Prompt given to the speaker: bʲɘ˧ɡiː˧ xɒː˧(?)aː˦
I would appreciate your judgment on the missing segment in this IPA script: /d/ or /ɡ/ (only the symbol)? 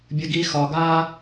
ɡ